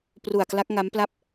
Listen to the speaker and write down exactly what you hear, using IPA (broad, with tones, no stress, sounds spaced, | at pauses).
p r u˨˩ a̯ k l a˦˥ k̚ ŋ a˦˥ m p l a˥˩ p̚